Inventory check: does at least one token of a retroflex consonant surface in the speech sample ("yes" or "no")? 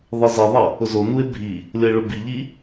yes